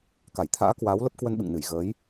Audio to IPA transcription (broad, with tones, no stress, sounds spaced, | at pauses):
k a˧˩ j t̪ʰ a̰ː˧˥ k w aː˨˦ w l ə˦˥ p̚ k w ə˧ n ɓ ɨ̰˧˨ ŋ n ɨ˧˩ j ɣ əː˨˦ j